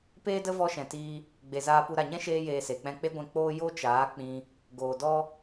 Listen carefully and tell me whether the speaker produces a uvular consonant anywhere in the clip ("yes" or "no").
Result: no